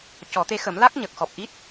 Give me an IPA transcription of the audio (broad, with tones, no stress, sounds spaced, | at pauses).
c ɔ˨˩˦ t̪ e˧˥ x ə˨˩˦ m l a˦˥ k̚ ɲ ə˨˩ k̚ x ɔ˨˩ p̚ ʔ i˦˥ t̚